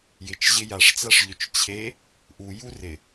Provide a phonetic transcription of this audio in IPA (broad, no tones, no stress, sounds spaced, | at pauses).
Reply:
j ɪ t͡ʃ ʑ ɪ j a ʂ t͡s a ʂ ʎ ʏ t͡ʃ t͡ɕʰ e | ʔ u j u r ɪ